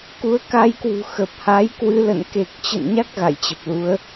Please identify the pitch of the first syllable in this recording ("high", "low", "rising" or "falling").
rising